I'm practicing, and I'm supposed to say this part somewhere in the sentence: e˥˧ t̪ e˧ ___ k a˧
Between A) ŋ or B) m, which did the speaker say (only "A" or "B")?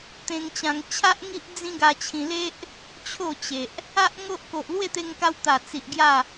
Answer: A